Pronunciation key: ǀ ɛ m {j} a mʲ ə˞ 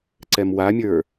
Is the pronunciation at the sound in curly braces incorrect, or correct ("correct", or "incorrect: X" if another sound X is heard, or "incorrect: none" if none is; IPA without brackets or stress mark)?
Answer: incorrect: w